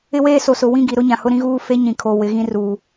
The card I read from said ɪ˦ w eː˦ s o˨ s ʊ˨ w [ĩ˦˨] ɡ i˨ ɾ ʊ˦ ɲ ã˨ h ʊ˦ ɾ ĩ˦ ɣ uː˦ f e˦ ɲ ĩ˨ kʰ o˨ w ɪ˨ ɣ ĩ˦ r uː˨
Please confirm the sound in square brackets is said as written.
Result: yes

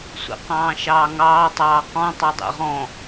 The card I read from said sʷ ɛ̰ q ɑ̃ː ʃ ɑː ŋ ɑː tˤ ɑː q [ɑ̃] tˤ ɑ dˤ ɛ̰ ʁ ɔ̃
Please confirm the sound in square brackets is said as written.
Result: no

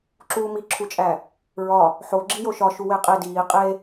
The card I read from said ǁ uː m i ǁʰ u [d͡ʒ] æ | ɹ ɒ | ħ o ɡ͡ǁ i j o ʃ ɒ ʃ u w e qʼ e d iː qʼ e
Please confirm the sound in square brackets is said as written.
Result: no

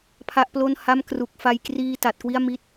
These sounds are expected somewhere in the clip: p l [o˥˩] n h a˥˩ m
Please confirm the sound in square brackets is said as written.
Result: yes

